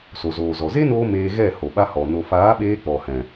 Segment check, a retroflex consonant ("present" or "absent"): absent